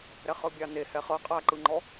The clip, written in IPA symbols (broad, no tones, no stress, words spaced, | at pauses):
ɾɛχɤbʲane hɛχɤ qʼaǃɯŋ͡ǃɔ